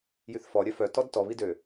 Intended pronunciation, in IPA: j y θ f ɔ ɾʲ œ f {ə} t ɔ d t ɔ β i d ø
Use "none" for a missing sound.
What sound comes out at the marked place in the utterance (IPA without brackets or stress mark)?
œ